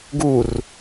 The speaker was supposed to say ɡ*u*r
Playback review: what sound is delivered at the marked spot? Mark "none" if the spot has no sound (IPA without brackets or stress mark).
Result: u